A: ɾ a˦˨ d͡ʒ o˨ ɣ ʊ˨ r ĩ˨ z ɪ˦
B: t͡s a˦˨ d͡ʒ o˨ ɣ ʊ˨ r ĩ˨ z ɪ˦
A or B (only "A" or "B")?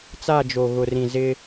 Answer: B